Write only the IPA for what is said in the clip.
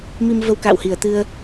mi˧mvə˧wka̰ː˧˨whi˧˩ə̯ t̪ɨ˧ə̯

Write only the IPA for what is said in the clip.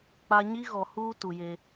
k͡pa˦ ɲi˦ɣɔ˨huː˦ tu˨je˦

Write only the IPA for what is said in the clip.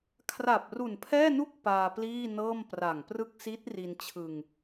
kʰra˨˩p̚ru˨˩npʰɛː˥˩nu˥˩k̚ paː˧pliː˥˩nɤː˥˩m pra˨˩ŋprɯ˥˩k̚ si˦˥t̚ ri˧nt͡ɕʰɯ˧ŋ

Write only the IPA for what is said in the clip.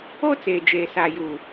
o˦ t͡seː˨d͡ʒeː˨ sa˨juː˨

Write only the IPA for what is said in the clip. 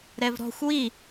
ɾɛvɾɔ̤xʷ wi

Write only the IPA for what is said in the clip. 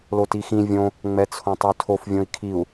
lotixĩ vʲõ | ŋ͡mɛt͡sʰõtˤøtʰof vʲõi̯kʰiu̯

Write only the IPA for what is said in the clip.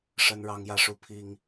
ʂə˥nɻɑ˥ŋjä˥ʂu˥ pʰi˥ŋ

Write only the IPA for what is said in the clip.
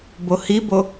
bohibo

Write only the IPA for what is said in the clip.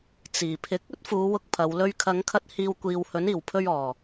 t͡siː˨˩pʰɪ˧k̚ ɵ˥t̚fuː˨˧ wʊ˥k̚pʰɐ˨˧w lɵ˥ɥ kʰɐ˨˧ŋkʰɐ˧t̚ hiː˧w kʷiː˨whɵ˨˥n iː˨˩wpʰɵ˧ɥ ɔː˨˩

